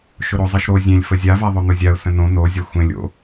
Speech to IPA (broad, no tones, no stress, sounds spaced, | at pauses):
ʃ ʊ ɾ o zˤ e ʃ ɾ o zʲ ẽ lʲ f ə zʲ a v a ðˤ o n̪ ʊ zʲ a ʊ̯ s ə̃ n õ n o zʲ ɒ xʷ ẽ lʲ o̰